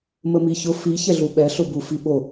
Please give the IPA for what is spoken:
m ə m i ç ʊ f i ç ɛ ɮ u ɓ ɛ ɬ ʊ b u f i ɓ o

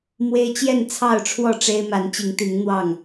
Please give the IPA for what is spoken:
m w e˦ ɪ̯ t͡ɕ j ɛ˥˨ n t͡sʰ ɑ˥˨ ʊ̯ ʈ͡ʂʰ w ɔ˥˨ ʈ͡ʂ e˦ ɪ̯ m a˨˦ n t͡ɕ i˨˦ ŋ t̪ i˨˦ ŋ n̪ w ɑ˥˨ ŋ

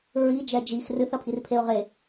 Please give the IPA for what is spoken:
ɹ i d͡ʒ ɛ d͡ʒ i x r ɨ θ ɐ pʰ i r pʰ e ʊ̯ ʁ e

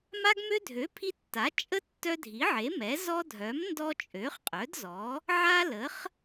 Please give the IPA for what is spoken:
m a˦ ɡ m ø˦ dʱ ø˩˥ pʰ i˦ tː a˩˥ t͡ʃʼ ə˦ tː œ˦ dʱ i˩˥ ʕ e˩˥ m ɛ˩˥ z ɔ˦ dʱ œ˩˥ m n d ɔ˦ t͡ʃʼ ø˩˥ χ qʼ œ˩˥ d z ɔ˩˥ | ʕ a˦ l ə˩˥ χ

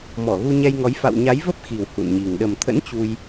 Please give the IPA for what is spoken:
m ɔ˧˩ ɣ u˧ ɲ ɛ˧ j ŋ ɔ˨˦ j f a̰˧˨ w ɲ a˨˦ j v ə˦˥ p̚ x i˨˩ w h ṵ˧˨ n ɲ i˨˩ ŋ ɗ ə˨˩ m t̪ʰ ə̰˧˥ n t͡ɕ u˧ j

